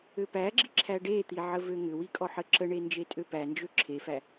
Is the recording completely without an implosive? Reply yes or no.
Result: yes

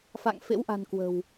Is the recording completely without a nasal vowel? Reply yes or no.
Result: yes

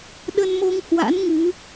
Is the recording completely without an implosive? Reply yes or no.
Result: no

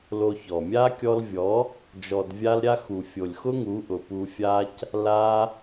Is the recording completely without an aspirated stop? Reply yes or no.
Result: yes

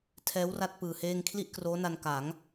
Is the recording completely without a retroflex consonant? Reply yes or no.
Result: yes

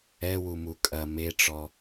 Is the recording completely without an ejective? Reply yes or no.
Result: no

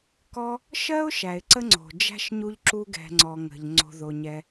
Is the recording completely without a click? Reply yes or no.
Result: no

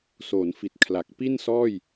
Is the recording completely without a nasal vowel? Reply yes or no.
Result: yes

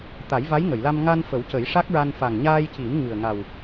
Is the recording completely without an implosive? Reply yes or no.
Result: yes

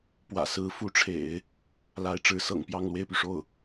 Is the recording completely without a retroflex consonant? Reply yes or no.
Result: no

